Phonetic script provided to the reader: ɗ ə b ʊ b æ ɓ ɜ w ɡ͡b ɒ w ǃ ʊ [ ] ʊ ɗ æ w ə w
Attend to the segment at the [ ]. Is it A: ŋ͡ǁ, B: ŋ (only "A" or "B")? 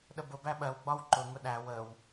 B